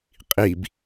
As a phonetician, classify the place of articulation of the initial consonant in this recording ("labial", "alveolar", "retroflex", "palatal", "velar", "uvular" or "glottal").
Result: uvular